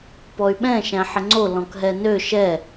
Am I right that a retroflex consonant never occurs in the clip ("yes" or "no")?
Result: yes